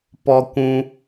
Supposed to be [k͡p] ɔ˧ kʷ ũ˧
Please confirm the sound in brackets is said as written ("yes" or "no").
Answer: no